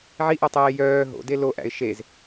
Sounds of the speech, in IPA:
ʕ i ʔ ɛ tˤ eː j œː ɦ o̰ d e l o ʔ æ̰ ɪ̯ ʃ e z

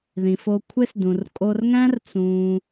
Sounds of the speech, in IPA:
ð ĩ˨ f o˧ kʷʰ e˦ s d ũ˨ r kʼ o˧ r ŋ æ̃˦ r t͡s ũː˧

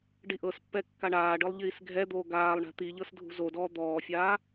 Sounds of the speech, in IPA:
ɖ i ʔ ɤ s pː ɛ kː a ɳ aː ɖ ɯ lˠ ʎ iː s ɡʱ ɛ d̪ oː ɡ aː lˠ ɳ ɛ̤ t̪ i ʎ ɤ s dʱ ṳ z o d ɔː d̪ ɔː fʲ aː

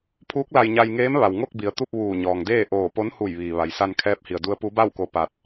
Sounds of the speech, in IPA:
pʰ uː˧˥ k̚ l a˧ j ɲ a˧ j ŋ eː˧˥ m ʋ a˩ w ŋ o˥˨ k̚ b i˩ ə̯ t̪ u˥˨ p̚ ʋ uː˧˩ ɲ ɔː˩ ŋ d eː˥˨ ʔ oː˧˩ p o˧˥ n h u˧˩ j ʋ iː˩ ʋ a˩ j s a˧ n kʰ ɛː˧˥ p̚ h i˩ ə̯ d u˧˥ ə̯ p u˧˥ b a˥˨ w k o˧ p a˧ t̚

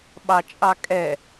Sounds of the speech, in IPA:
ɓ ɑ t͡ʃʼ ɑ kʼ ɛ

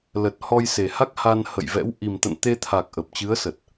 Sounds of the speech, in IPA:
l ə˨˩ t̚ h ɔ˧ j s e˨˩ h a˦˥ k̚ h a˧ n h ə̰˧˨ j v ɛ̰˧˥ w ʔ i˨˩ m t̪ ə̰˧˨ n t̪ e˧ t̪ʰ a˨˩ k̚ ʔ ə˨˩ p̚ t͡ɕ ɨ˨˦ ə̯ s ə˨˩ t̚

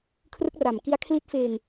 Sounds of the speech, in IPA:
kʰ r ɯ˦˥ k̚ r a˨˩ m k i˦˥ a̯ kʰ l i˦˥ t̚ f eː˧ ŋ

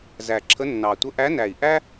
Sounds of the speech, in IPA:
z æ˨˩ ǁʰ ə˧˥ nː ɑ˨˩ tʷ ə˧˥ ʔ æ˧˥ n æ˨˩ i̯ ʔ æ˥

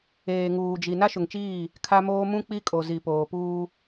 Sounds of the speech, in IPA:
eː˨ ŋ uː˨ d͡ʒ i˨ n a˦ ʃ ʊ˨ ŋ t͡ʃ iː˦˨ | kʰ a˦ m oː˦ m ũ˦ k͡p i˦ kʼ o˨ z i˨ p oː˨ p uː˦

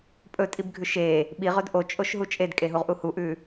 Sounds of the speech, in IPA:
pʼ ɵ tʼ i b ɡʱ ʉ ʃ e | ɓ i ʁ ɵ d ʔ o t͡ʃʼ o ʃ ɦ u t͡ʃʼ e d kʼ e ɦ u ʁ ʔ u h u ʔ ʉ

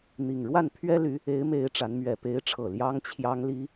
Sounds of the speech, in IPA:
n̪ i˨˩ ŋ ɻ w a˥˩ n pʰ ɥ ɛ˥ l y˧˥ | e˧˥ ɪ̯ m e˧˥ ɪ̯ ʈ͡ʂ a˧˥ n m ɥ ɛ˨˩ p e˧˥ ɪ̯ ʈ͡ʂʰ ɤ˨˩ l j ɑ˥ ŋ t͡ɕʰ j ɑ˥ ŋ l i˥

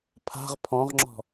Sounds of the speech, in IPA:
pʰ a̤ ʁ pʰ ɔ̃ ʁ ŋ͡ǁ ɔ̤

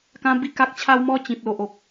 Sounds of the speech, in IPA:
k ã˦ b i˥˧ k a˦ k̚ t͡ɕʰ a˦ w m ɔ˦ t͡ɕ ĩ˨ p̚ l o˨ ʔ o˨ k̚

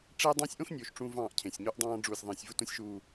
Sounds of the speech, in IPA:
ʈ͡ʂ e˦ dˤ ɑ̃ː˦ sʲ ʔ õ˦ x nʲ oː˨ ʃ ʈ͡ʂ ũ˦ v ɑ̃ː˦˨ ʔ cʰ ẽ˨ sʲ ɲ u˦ ʔ dˤ ɑ̃ː˦ ɖ͡ʐ uː˨ sʲ ðˤ ẽː˨ sʲ v u˦˨ t ũ˦ sʲ ʃ uː˦

